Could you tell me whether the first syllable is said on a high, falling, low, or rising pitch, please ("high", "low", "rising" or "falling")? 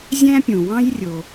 high